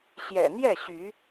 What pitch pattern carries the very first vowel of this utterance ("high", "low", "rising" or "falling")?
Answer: low